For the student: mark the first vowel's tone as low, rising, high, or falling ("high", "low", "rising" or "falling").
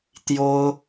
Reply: high